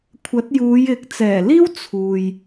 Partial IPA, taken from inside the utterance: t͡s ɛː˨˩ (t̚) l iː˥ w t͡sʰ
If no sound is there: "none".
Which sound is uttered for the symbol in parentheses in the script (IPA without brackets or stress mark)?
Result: none